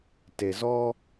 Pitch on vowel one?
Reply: low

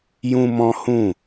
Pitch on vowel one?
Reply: high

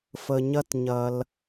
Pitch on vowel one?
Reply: low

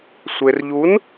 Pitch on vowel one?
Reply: low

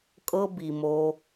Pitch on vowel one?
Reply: high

